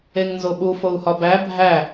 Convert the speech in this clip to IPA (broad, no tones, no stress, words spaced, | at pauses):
eŋnzoɓu fou̯hɒbæ bʱæ